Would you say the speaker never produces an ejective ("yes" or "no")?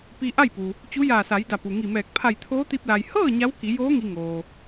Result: yes